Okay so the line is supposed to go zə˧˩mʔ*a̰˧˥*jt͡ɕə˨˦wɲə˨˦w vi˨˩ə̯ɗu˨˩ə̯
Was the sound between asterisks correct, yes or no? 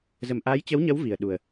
no